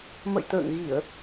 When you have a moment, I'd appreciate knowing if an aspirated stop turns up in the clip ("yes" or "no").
no